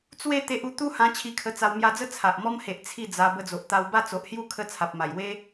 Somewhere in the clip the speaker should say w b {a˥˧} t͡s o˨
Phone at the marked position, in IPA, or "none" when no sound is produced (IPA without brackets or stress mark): a˥˧